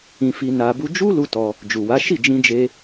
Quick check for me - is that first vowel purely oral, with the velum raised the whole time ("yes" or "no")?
no